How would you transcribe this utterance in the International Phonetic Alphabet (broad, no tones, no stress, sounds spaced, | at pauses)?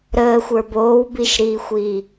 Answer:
ɾ əː xʷ ə˞ b oː w b i ʃ ɾ iː xʷ iː